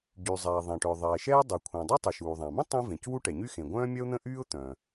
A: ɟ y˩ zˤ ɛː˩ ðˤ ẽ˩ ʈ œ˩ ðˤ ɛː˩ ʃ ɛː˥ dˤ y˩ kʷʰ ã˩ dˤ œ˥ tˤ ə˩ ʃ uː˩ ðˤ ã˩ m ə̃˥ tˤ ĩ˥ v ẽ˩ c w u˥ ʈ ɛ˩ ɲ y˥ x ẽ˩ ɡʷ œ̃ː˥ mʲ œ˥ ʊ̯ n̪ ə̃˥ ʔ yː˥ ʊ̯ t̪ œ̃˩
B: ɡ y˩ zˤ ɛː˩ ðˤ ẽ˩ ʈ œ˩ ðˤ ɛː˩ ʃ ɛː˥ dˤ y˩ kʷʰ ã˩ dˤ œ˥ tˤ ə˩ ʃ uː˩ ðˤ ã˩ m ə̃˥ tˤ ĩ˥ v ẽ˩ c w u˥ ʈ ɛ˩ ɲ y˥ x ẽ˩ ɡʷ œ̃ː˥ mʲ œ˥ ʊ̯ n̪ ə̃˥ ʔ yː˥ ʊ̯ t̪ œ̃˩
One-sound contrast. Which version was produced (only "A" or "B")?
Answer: A